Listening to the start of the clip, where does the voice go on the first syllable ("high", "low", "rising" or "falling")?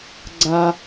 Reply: high